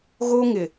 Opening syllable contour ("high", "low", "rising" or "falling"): high